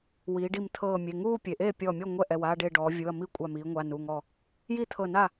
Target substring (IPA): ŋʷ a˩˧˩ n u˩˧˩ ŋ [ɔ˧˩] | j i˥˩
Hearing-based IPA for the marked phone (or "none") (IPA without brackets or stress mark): ɔ˧˩